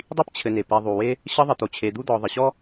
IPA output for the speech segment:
dˤ i˥ p t͡ɕʰ ɘ˨ n e˩ p e˨ ðˤ u˩ w e˦ | ɕ ə˦ ðˤ ə˨ t̪ o˩ t͡ɕʰ e˨ d̪ u˦ d̪ ɔ˨ ðˤ ə˩ ɕ ɔ˥

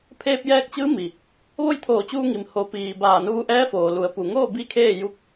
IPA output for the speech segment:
pʰ eː˧ p̚ j ɛː˧ k̚ t͡ɕ ɯː˧˥ m i˩ | ʋ o˥˨ j t̪ʰ oː˧˩ t͡ɕ uː˧ ŋ i˩ m h o˩˧ p iː˩ b aː˧˩ n uː˧ ʔ ɛː˧˥ f oː˩ l u˩˧ ə̯ p u˩ ŋ oː˥˨ b i˧˥ kʰ eː˥˨ j u˧˥ k̚

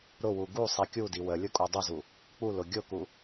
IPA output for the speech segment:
ɾ ʊ w u ɡ u sˤ i kʲ u d i w ə lʲ ʊ kʼ u dˤ ʊ z u | k͡p u l ʊ ɡʲ ʊ k u

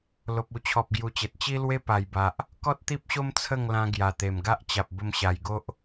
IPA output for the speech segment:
l o˨ p̚ u˧ t͡ɕʰ ɔ˨ p̚ ɡ j u˨˩ t͡ɕ e˨ t̚ t͡ɕ i˦ l w e˦ p a˨˩ j b a˨ ʔ | k ɔ˦ t̚ t̪ i˦ p̚ ɕ o˦ m t͡sʰ ə˥˧ ŋ l ã˧ ɡ j a˨˩ t̪ e˨˩ m ɡ a˦ ʔ t͡ɕ a˨ p̚ b ə˧ m ɕ a˨˩ j ɡ o˦ ʔ

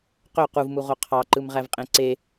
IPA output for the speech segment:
q ø q u v m u ʁ o qʰ ɑ ǃ ɯ m ʁ æ v qʼ ẽ ǀ e

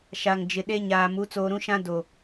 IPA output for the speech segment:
ʃ a˨ ŋ d͡ʒ ɪ˨ ɗ e˦ ɲ aː˨ m u˨˦ t͡s oː˨ ɾ ũ˦ ʃ ã˦ d o˨

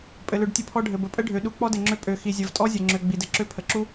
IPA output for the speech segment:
pʼ ɘ˨ l ø˨ ɖ tʲ ə˧ pʰ ɔ˧ ɖʱ ɘ˨ b ə˨ pʼ ə˦ ɖʱ ø˨ ɗ u˧ k͡p ɔ˦ d ɘ˨ ŋ͡ǁ ø˧ pʼ ø˨ x i˨ zʲ ɘ˨ v tʼ ɔ˦ zʲ ɘ˨ ŋ͡ǁ ø˨ ɡ͡b i˨ d ɘ˧ ǁ ø˦ pʰ ə˨ ǁ u˦

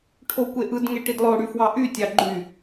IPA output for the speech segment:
ʈʰ o kʷ e ʔ ɯ d ŋ e ʈ i d lˠ o ɽ y f w ɑ ʔ y tʲ ɑ ɡ͡ǃ y

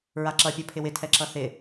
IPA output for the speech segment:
ɹ a ǁ ʌ pʲ ʌ pʰ ɪ w ɪ tʰ ɛ ǁ ʌ θ ɪ

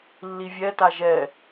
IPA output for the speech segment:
lː i vʲ ɛ t a ʒ ɛ

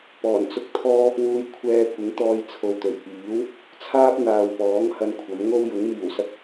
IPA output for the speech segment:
p ɔː˨˩ n t͡s ʊ˥ k̚ t̪ʰ ɔː˥ | w uː˧ j kʷʰ ɛː˧ kʷ ɪ˨˥ ŋ t̪ ɔː˧ j t͡sʰ o˨ w t̪ ɵ˨˩ ɥ p iː˨˥ w | t͡sʰ aː˥ p̚ n̪ aː˨ w p ɔː˨˥ ŋ h ɐ˧ n kʷʰ ɐ˨˥ m ŋ o˥ w j ʊ˨˥ ŋ m iː˨˩ w s ɐ˥ k̚

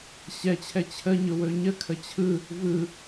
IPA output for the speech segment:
ɕ ɛ t͡ɕʰ ɛ t͡ɕʰ ə ɲ ʊ w ɵ ɲ ə kʰ ə t͡ɕʰ ɯ | v ɯ

